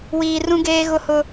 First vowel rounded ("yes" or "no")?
no